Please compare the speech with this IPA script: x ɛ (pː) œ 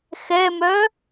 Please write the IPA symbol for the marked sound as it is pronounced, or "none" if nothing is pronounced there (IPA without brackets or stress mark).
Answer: m